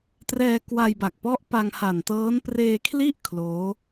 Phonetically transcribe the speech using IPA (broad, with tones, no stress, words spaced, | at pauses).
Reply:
trɛː˧kwa˧jba˨˩k̚pɔ˦˥ʔ pa˧ŋha˨˩ntɤː˦˥n preː˧kʰli˥˩ʔ kʰloː˦˥